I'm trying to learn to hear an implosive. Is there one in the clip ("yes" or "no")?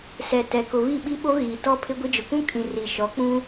yes